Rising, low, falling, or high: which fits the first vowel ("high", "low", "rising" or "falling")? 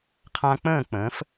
high